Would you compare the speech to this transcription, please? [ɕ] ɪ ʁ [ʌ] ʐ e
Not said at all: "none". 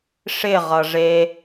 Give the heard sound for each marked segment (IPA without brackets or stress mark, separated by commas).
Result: ʂ, ʌ